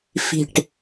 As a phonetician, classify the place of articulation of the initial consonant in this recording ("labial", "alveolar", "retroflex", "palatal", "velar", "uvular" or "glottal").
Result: labial